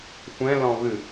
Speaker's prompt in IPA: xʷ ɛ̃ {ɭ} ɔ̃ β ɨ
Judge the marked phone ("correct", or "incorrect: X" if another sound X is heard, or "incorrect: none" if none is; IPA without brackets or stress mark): incorrect: l